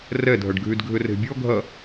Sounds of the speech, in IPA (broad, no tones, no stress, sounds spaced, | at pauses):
r ɛ dʱ ɐ ɖ ɡʱ y d ɡʱ ʏ r e̤ bʲ ɔ ɡʱ ɐ